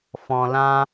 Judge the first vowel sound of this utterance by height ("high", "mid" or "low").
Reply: mid